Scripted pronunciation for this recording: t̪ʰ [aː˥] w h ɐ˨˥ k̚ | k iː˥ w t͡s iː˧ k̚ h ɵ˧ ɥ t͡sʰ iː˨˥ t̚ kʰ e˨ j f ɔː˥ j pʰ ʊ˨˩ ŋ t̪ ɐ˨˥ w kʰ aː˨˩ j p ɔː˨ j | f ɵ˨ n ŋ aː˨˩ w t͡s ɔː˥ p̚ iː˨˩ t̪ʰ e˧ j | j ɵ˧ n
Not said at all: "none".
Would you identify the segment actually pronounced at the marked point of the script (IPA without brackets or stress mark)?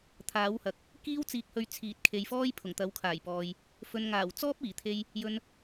aː˨˥